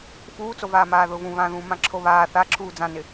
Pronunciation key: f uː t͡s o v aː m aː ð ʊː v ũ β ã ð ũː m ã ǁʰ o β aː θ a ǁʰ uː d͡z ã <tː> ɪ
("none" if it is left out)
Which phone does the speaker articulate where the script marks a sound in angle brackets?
n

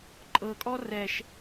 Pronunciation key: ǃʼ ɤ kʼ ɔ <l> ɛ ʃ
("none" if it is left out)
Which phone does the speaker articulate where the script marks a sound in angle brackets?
r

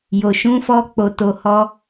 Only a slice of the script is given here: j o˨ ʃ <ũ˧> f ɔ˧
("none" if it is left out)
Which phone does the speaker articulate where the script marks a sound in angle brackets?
ũ˨˦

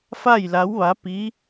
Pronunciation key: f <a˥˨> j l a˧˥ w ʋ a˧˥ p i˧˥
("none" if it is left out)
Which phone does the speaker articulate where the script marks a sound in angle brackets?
a˥˨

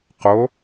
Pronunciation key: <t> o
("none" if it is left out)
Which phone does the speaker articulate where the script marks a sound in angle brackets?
q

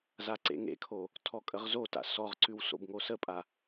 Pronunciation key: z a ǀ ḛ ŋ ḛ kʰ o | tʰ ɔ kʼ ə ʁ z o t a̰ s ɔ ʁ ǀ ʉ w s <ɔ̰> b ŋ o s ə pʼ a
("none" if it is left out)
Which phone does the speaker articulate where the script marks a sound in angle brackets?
o̰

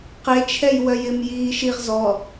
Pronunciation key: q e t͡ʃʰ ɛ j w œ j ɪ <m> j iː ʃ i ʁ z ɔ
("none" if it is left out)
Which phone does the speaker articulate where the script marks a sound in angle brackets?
m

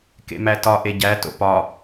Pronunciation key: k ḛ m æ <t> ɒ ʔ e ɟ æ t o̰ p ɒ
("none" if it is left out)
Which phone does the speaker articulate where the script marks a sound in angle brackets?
t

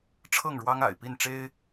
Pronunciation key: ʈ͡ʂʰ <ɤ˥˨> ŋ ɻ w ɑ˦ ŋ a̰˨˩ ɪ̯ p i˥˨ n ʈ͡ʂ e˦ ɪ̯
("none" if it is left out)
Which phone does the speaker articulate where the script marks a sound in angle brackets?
ɤ˥˨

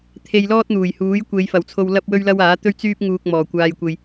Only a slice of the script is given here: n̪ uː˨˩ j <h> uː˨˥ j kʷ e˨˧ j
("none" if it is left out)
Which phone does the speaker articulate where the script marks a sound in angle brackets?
h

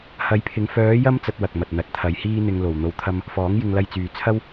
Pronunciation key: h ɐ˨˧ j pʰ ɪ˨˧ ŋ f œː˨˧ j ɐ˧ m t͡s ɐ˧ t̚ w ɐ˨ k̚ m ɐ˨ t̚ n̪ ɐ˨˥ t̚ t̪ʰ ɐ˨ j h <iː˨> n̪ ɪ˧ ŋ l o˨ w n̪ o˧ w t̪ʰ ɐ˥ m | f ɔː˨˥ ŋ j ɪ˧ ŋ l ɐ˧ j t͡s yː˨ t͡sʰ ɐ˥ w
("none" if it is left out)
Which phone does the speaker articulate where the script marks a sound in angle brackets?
iː˥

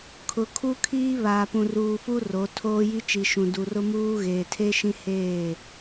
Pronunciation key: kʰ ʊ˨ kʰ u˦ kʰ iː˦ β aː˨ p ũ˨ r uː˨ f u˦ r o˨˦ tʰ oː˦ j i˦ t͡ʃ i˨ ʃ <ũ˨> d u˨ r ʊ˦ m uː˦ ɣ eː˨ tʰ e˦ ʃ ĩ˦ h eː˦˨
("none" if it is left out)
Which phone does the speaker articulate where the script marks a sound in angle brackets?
ũ˨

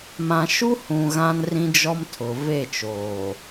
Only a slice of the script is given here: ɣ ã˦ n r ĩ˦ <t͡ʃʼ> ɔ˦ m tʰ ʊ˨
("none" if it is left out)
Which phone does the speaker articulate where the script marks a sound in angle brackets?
d͡ʒ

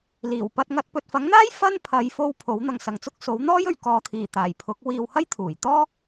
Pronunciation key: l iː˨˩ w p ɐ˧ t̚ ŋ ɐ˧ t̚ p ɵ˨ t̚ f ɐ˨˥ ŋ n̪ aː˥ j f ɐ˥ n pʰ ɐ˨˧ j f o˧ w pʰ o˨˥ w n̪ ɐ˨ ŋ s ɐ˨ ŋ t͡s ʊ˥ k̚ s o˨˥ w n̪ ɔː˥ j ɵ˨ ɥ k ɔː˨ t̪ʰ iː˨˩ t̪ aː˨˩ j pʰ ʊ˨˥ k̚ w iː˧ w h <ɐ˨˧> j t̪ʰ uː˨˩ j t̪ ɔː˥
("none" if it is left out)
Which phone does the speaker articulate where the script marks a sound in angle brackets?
ɐ˥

